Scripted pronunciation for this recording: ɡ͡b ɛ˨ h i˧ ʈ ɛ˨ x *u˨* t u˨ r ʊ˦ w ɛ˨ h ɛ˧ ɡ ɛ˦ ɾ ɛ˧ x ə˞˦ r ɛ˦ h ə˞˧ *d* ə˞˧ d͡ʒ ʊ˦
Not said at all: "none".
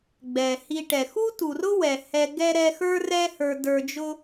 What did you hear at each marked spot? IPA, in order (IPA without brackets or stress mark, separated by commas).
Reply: u˦, d